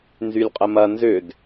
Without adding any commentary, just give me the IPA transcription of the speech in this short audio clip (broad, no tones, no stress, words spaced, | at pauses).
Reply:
nzylʲqʼəmɐ nzʏd